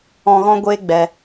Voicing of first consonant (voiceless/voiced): voiced